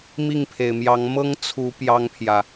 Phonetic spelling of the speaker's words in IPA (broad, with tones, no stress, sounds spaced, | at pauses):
m i˥˨ ŋ pʰ e˩ ɪ̯ m j ɑ˨˦ ŋ m ɤ˦ ŋ t͡sʰ u˨˦ p j ɑ˦ ŋ pʰ j ä˨